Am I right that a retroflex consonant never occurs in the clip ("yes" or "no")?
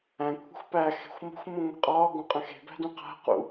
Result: yes